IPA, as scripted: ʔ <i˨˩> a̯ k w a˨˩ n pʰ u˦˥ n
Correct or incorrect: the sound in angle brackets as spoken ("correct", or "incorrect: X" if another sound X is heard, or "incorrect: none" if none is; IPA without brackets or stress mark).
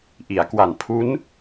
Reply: incorrect: i˩˦